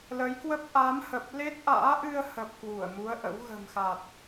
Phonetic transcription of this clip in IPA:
l ə˨˦ j k w ə˦˥ p̚ ʔ a˨˦ m h ə˨˩ p̚ l e˦˥ t̚ ʔ a̰ː˧˥ ʔ ɨ˧ ə̯ h ə˨˩ p̚ k w u˧˩ ə̯ m u˨˦ ə̯ ʔ ə̰˧˥ w ɣ ə̤˨˩ m x a˨˩ t̚

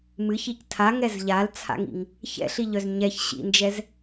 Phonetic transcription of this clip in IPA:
m ɨ ç i c tʰ a ŋ ɛ z ʎ a l t͡sʰ a̰ ŋ ḭ ŋ | ç ɛ̰ ɬ i ʎ œ z ɲ ɛ ç ɕ ḭ n d͡ʒ ɛ z

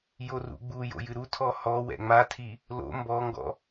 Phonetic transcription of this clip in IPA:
j o r ṵ ɡ͡b u j o̰ j ɨ ɾ u tʰ ɔ h ɔ w ɛ̰ ŋ͡m a tʰ i | l o̰ m b ɔ ŋ ɡ ɔ̰

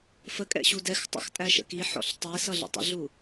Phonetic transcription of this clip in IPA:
f ə kʼ ɛ̰ ɕ u d ɛ x tˤ ə̰ x tʼ æ ʃ ə̰ k i ħ ɔ̰ ɬ tˤ i s ʌ ɮ ə̰ tˤ ə̰ ɮ u

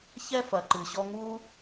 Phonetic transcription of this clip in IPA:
ç ɛ˦ f ɐ˨ ǃ ɨ˨ ɕ ɔ˦ ŋ u˥

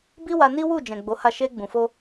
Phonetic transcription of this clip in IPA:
b i˦ w a˧ n i˦ w u˦˨ d͡ʒ ɛ̃˨ ɡ͡b o˨˦ h a˦˨ ʃ e˧ ɡ͡b ũ˨ f o˧

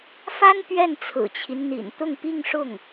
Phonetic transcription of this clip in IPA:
f a˥ n p ɥ ɛ˥˩ n t͡sʰ ɹ̩˨˩ t͡ɕʰ i˦ n n̪ ḭ˨˩ n t̪ ʊ˥˧ ŋ p i˥˧ ŋ ʂ ʊ˥˩ ŋ

